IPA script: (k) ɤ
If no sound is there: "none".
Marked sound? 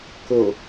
k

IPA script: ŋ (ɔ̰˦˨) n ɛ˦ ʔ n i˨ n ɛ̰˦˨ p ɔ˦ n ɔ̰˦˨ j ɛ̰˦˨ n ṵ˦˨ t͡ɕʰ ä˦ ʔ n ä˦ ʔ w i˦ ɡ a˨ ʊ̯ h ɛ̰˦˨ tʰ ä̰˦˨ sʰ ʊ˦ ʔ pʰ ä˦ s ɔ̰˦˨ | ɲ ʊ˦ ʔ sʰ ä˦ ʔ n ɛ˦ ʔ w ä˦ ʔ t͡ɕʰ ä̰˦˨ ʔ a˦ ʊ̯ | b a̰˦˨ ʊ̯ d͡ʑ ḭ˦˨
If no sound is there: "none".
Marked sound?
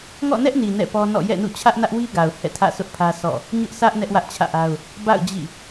ɔ̰˦˨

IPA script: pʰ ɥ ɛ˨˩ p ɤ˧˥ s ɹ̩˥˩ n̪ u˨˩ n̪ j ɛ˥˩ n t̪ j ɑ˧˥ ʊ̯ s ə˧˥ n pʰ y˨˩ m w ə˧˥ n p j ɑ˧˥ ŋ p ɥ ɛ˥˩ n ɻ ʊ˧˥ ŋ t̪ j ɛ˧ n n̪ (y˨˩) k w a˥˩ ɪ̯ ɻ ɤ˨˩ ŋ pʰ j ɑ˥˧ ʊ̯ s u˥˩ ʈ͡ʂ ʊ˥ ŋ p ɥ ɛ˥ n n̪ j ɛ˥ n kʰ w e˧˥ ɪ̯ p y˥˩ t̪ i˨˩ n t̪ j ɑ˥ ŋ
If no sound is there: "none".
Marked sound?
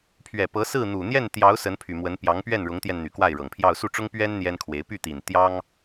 y˨˩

